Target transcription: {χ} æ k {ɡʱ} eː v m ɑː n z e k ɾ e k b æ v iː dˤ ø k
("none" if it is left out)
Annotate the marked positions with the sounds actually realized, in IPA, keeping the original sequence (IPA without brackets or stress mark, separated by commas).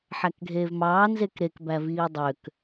ħ, ɡʱ